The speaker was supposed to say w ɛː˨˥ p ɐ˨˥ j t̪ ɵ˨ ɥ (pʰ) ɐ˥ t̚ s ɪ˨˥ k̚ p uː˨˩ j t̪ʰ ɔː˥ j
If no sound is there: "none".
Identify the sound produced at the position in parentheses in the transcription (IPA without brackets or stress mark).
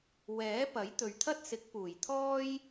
t̪ʰ